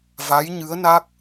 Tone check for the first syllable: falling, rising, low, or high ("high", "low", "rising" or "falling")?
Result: rising